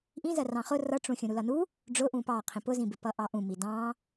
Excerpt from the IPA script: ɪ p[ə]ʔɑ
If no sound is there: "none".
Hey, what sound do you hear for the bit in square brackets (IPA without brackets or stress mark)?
ʌ